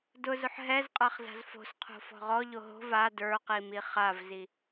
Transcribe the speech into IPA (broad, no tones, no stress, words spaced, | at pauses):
dʊzʊħ ɦɛzqʼaχ za̤zfo̤sqʰo̤ fɔ̤ʁɔʎo ɦo̤v a də˞qi miχavzi